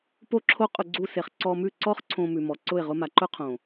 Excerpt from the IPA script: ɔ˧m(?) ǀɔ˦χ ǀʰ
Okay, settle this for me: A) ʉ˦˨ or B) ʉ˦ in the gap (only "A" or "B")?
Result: A